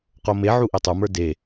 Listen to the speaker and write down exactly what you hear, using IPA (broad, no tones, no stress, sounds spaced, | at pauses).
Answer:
q o m e ʕ u ʔ i tˤ u m ə˞ d e